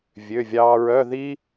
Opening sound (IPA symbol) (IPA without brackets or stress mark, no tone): vʲ